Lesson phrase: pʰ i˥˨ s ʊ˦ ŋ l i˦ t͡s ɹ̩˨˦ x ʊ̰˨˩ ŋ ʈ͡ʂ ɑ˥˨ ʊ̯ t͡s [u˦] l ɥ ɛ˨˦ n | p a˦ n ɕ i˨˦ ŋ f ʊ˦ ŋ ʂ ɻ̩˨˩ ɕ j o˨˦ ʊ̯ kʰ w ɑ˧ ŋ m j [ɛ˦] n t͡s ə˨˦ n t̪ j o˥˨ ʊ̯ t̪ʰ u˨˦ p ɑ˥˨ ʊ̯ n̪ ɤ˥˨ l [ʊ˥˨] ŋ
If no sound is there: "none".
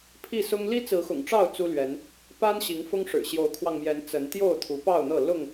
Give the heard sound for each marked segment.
u˦, ɛ˨˦, ʊ˥˨

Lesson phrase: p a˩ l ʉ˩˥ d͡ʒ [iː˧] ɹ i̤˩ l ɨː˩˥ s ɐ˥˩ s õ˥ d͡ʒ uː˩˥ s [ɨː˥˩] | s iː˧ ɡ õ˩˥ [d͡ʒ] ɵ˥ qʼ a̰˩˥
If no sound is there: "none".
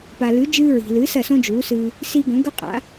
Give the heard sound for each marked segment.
ɨː˧, ɨː˧, ɡ

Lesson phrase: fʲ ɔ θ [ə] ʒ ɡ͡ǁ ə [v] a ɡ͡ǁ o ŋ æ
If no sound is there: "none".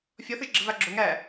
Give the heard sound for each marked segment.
ə, v

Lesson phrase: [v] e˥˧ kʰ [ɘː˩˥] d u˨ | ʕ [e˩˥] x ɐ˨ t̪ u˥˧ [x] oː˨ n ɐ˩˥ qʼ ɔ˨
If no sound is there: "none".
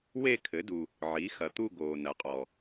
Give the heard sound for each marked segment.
w, ɘ˩˥, i˩˥, ɡ

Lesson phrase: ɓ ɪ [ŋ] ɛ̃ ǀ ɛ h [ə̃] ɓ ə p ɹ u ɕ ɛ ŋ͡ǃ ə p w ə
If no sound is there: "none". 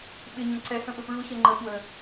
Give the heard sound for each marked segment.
ɲ, ə̃

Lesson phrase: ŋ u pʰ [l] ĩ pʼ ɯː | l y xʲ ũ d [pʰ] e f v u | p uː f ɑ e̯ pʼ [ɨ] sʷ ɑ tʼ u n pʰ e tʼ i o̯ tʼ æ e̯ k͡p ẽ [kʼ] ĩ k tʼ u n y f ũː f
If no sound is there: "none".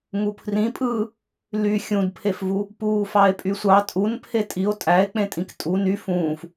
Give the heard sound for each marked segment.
r, pʰ, y, tʼ

